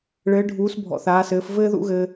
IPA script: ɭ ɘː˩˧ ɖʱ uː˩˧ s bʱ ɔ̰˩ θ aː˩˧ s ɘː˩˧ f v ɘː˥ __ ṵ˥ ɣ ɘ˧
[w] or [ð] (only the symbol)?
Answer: ð